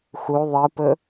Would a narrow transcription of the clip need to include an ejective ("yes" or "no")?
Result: no